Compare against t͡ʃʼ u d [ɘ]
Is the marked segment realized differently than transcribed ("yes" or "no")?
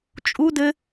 no